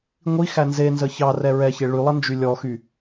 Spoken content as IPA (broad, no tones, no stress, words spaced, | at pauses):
ŋʷi xænzenzə çɑ rɛɹɛçe ɭy lˠənd͡ʒylʲɔxy